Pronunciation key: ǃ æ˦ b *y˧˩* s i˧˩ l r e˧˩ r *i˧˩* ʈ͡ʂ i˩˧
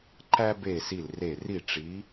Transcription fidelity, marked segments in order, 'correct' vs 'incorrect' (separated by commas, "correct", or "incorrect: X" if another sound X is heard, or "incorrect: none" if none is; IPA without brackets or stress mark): incorrect: e˧˩, correct